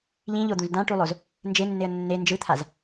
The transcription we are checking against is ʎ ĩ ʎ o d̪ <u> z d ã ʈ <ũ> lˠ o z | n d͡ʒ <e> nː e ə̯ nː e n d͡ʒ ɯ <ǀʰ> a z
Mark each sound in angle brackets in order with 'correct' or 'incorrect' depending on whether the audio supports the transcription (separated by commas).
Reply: incorrect, incorrect, correct, incorrect